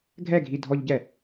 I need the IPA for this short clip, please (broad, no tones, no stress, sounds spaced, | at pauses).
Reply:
ɡʱ ɛ ɡʱ i dʱ ɔ ʎ ɟ ɛ